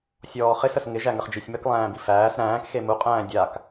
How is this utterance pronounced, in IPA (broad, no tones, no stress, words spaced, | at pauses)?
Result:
sʲɔːχɪs əsŋɪʒæ ŋəχd͡ʒisʲmək lˠæ̃ːbifæːs ɾæ̃ːkxe muqʼæ̃ː dʲak